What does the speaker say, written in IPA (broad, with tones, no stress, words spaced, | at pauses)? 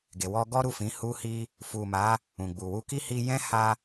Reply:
ɡe˨wɔ˧ɡɔ˦ɾu˦˨ fĩ˨˦ hu˧hi˧ | fu˨ma˨˦ | ũ˨ɡ͡bu˨wu˧ki˦ hi˧jɛ̃˦ha˧